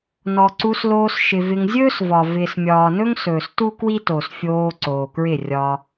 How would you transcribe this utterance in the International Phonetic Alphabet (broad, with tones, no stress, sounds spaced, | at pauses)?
n ɔ˨ ǀ u˧ s l oː˧ s ʃ ɪ˨ v ɪ˧ ŋ zʲ ɵː˦ s v ɒ˨ v ɪː˨ s mʲ ɒː˨ n ɵ˦ ŋ s ɵː˨ s t u˦ k w i˦ t o˨ s fʲ oː˧ ǀ oː˨ k ɹ ɪ˦˨ rʲ ɒː˧